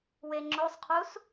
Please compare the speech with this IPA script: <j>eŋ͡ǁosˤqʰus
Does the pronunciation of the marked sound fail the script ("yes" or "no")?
yes